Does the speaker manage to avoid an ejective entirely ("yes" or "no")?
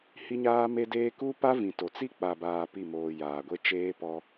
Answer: yes